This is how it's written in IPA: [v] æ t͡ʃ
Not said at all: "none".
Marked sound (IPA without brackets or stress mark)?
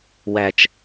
w